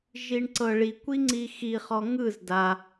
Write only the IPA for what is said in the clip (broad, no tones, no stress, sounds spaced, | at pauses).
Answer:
ʒ i ɳ ǀ ɤ ɭ i kʷ i ŋ͡ǀ i x i χ ɔ ŋ ɯ z d a